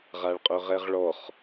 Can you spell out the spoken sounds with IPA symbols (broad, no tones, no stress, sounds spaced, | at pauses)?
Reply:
ʁ a ɭ qʼ œ ʁ ɛ ʁ ɭ ɔ χ